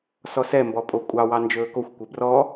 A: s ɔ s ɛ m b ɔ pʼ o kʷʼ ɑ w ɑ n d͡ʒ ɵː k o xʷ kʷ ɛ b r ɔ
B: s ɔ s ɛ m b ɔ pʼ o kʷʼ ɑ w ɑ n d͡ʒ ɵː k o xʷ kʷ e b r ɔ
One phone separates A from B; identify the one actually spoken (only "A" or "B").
A